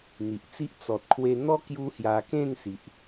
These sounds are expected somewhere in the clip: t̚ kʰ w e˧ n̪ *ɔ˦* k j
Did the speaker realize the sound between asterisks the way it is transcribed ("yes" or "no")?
yes